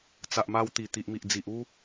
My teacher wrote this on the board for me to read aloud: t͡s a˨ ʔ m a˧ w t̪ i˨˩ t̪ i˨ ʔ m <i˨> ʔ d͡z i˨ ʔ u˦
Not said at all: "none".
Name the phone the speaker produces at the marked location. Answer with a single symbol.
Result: i˨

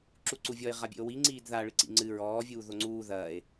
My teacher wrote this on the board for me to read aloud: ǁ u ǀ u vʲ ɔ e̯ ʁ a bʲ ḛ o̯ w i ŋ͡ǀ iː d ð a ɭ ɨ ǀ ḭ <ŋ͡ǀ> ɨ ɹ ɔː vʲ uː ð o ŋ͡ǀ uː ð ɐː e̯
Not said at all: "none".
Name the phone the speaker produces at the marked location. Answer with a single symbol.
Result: ŋ͡ǀ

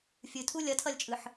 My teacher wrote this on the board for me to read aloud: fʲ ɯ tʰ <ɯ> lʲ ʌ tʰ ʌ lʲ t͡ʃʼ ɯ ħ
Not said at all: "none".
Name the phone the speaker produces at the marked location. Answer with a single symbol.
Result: u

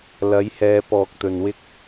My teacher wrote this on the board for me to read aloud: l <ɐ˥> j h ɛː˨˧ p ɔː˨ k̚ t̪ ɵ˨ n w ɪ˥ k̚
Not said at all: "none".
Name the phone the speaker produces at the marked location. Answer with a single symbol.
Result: ɐ˨˥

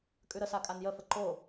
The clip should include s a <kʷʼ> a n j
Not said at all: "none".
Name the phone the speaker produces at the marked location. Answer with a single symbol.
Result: kʼ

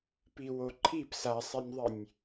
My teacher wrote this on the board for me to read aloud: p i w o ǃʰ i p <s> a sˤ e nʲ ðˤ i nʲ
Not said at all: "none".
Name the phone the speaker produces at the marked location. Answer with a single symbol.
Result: s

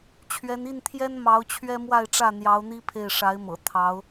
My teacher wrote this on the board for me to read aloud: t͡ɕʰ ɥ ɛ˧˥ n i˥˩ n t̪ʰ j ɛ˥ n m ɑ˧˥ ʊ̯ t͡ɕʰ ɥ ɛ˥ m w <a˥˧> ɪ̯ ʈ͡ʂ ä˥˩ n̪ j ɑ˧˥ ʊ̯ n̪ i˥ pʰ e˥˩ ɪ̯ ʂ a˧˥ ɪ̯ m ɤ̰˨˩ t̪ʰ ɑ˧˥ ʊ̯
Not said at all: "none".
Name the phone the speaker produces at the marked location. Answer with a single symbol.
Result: a˥˧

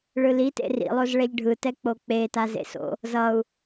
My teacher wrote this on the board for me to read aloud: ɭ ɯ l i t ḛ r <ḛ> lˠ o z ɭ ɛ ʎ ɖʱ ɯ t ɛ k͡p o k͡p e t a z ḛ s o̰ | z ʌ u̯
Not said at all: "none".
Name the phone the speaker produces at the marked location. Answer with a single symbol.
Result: ḭ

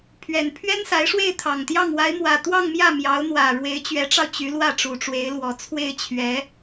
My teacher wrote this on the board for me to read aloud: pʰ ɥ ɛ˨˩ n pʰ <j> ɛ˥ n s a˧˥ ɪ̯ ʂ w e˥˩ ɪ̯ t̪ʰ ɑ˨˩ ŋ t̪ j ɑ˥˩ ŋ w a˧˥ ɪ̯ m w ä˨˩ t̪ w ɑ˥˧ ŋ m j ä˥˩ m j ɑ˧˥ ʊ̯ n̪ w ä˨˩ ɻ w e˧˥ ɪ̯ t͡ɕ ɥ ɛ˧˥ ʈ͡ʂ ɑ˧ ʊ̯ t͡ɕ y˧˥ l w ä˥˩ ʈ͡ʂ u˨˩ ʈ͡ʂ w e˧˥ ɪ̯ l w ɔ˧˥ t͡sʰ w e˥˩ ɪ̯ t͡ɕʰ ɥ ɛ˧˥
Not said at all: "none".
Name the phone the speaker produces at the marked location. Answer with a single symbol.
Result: ɥ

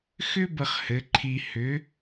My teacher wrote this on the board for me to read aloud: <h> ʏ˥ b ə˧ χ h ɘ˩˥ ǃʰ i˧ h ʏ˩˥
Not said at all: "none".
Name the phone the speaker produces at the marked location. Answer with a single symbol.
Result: x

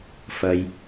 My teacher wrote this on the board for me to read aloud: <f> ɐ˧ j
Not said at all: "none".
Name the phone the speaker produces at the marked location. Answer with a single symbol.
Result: f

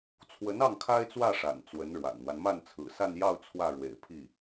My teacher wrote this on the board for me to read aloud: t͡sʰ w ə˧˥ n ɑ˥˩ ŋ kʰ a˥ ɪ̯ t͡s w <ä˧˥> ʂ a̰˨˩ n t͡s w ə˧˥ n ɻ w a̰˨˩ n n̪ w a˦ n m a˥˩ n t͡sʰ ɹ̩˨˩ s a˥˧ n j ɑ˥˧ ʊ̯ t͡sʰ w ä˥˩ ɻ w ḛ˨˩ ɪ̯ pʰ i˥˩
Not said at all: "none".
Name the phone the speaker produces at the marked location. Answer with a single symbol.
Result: ä˥˩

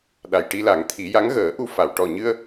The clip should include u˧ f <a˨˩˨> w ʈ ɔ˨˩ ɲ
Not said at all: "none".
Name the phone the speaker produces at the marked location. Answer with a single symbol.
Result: a˨˩˨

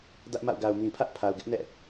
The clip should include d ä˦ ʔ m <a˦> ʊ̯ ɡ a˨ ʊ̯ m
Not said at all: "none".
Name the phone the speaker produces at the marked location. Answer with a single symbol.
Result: a̰˦˨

